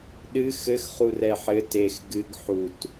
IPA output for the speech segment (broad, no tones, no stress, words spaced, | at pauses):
ɗɨ xɘxχurɛ ħɘ tex ɡɨɡ ħut